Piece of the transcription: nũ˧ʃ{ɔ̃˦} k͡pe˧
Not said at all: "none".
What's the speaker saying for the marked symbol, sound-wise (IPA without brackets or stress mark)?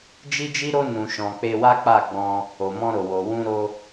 ɔ̃˧